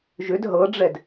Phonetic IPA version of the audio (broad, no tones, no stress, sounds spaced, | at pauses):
ʒ ʏ d ɦ ɤ ɖ͡ʐ ɛ d